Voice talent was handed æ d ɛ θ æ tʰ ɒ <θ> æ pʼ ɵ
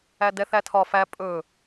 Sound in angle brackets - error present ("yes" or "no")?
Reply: yes